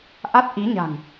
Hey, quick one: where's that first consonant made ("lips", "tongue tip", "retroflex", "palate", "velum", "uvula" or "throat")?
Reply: throat